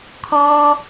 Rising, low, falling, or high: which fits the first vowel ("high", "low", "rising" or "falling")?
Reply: high